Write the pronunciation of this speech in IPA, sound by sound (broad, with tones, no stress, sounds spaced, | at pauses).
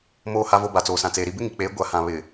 m oː˨ h a˨ v o˨ b a˨ t͡s oː˨ s ã˨ t͡s eː˨ ɾ i˨ b ɪ˦ ŋ i˨ k͡p eː˨˦ ɡʷ a˨ h ã˨ β ɪ˨